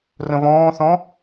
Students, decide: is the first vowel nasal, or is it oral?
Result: nasal